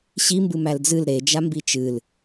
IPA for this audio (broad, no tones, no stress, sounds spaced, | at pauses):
ɕ i m b ɨ m æ l d͡z ɨ l ɾ e d͡ʒ a m b i t͡ʃ ɨ l